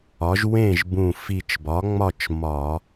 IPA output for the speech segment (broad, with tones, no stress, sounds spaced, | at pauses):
ɒ˩˥ ʒ w ẽ˥˨ ʒ b ũ˧˩ f i˧˩ t͡ʃ b ɒ˩˥ ŋ͡m ɒ˥˨ t͡ʃ m ɒ˧˩˧